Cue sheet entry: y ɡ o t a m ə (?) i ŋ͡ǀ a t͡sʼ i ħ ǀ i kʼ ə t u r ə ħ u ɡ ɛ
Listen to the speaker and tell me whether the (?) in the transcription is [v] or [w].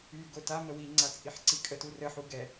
w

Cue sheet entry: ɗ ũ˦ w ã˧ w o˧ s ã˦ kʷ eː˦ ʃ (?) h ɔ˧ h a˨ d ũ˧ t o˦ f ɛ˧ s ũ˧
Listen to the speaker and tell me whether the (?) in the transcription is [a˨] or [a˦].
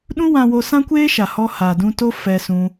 a˨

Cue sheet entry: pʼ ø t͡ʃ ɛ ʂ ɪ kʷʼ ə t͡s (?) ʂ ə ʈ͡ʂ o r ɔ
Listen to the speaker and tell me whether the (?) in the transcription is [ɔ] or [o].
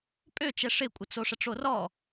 o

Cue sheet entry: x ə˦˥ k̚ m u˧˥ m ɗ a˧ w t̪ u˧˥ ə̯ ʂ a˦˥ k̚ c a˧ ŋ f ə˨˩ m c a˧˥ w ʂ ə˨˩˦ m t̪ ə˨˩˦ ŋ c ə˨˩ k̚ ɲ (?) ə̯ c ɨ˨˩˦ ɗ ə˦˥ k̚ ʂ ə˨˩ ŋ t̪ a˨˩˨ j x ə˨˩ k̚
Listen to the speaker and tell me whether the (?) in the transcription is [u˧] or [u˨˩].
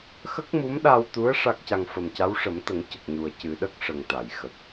u˨˩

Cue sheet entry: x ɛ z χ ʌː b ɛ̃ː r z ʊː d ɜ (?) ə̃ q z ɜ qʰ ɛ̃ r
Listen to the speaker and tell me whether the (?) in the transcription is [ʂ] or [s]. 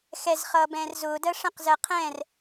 ʂ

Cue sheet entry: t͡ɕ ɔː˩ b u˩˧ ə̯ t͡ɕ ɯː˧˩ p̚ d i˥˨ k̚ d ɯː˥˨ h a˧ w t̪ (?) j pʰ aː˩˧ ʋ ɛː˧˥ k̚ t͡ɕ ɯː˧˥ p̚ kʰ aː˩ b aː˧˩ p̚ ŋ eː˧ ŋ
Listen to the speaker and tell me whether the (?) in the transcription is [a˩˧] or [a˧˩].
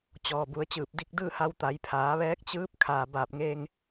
a˩˧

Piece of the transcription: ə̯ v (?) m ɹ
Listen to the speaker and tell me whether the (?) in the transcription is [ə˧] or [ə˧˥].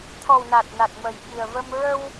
ə˧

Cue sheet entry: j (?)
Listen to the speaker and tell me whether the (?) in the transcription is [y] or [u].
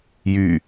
y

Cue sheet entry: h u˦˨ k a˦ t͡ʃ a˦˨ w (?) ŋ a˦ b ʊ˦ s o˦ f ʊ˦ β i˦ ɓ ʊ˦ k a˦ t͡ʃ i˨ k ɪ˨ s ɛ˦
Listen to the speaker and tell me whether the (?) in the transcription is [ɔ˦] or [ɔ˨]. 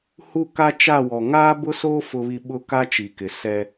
ɔ˨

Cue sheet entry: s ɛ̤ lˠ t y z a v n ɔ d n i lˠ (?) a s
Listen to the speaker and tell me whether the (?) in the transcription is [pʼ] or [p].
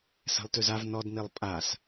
pʼ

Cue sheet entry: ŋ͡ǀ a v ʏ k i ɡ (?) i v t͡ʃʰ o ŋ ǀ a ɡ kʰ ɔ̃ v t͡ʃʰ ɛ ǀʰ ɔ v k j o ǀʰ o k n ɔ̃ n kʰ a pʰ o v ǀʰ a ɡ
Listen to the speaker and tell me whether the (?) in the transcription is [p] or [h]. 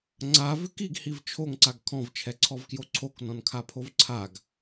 h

